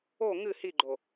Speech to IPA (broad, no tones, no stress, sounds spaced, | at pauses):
o ŋ ɨ h i ɡ͡ǃ o